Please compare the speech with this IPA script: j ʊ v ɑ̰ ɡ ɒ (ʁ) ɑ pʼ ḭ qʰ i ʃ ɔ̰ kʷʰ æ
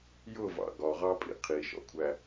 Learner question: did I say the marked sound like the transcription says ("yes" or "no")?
yes